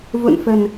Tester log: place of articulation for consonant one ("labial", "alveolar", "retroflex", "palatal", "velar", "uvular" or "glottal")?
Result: labial